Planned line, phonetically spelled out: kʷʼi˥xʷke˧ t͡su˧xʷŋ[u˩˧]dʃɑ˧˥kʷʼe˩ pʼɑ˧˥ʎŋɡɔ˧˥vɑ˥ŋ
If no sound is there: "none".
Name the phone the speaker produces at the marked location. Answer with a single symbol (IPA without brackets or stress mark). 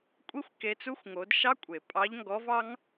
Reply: o˩˧